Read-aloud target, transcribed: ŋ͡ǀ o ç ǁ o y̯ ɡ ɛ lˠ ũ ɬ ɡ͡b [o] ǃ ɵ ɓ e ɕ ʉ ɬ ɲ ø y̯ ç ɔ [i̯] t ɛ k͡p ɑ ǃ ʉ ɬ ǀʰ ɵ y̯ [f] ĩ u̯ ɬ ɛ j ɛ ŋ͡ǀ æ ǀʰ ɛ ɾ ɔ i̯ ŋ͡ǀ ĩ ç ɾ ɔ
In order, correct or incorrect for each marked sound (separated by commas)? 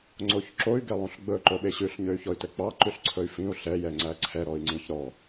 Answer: incorrect, incorrect, correct